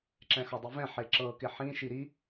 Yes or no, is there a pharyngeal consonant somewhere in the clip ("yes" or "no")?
yes